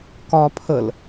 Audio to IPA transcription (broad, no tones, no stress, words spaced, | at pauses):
kɒ pʰəl